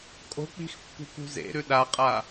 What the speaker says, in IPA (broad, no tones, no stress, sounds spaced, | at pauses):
kʼ o̤ k͡p i̤ x pː ṳ k ṳ z ḛ ɾ ʉ ɗ a qʼ a